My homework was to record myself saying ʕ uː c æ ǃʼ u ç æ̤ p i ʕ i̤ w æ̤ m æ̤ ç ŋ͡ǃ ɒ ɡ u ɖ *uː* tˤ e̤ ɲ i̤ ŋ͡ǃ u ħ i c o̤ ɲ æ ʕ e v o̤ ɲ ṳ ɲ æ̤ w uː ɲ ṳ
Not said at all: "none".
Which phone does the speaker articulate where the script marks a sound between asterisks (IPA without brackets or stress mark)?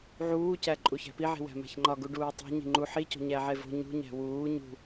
uː